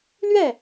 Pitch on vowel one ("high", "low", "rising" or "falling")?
falling